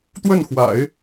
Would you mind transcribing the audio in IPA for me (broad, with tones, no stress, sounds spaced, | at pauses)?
t̪ w ə˥˩ n x w a̰˨˩˦ ɪ̯